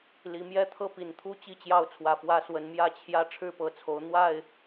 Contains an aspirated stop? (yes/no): yes